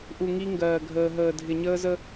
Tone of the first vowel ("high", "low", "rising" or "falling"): low